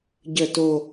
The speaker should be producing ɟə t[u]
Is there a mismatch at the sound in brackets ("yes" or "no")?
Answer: yes